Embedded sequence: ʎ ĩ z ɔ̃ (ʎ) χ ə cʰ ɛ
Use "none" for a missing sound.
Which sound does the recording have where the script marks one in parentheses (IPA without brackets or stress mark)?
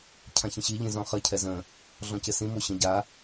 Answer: none